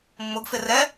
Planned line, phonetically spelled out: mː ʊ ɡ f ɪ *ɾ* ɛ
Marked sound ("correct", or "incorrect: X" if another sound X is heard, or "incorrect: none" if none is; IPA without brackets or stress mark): incorrect: r